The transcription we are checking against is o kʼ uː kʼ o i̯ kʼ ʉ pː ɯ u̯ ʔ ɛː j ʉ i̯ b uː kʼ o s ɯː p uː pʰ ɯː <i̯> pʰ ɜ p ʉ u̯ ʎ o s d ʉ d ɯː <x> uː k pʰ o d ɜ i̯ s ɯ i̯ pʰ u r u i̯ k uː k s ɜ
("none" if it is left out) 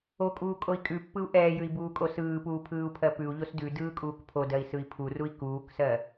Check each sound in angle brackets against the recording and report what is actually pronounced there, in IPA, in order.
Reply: u̯, kʼ

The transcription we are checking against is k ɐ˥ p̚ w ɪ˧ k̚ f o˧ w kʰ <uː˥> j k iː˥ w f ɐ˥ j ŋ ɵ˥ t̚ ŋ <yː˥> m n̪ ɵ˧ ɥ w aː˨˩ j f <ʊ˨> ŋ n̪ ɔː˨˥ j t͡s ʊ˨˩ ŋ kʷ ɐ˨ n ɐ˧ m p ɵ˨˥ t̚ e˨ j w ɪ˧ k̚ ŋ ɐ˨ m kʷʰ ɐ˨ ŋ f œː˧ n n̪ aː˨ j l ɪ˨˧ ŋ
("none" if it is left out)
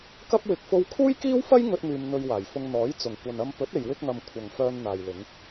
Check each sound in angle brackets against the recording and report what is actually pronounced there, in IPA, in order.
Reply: uː˥, yː˧, ʊ˧

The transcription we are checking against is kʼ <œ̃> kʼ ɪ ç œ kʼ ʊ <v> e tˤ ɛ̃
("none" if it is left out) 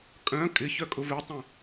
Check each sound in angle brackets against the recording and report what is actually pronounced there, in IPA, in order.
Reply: œ̃, v

